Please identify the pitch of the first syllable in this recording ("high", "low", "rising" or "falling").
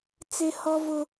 high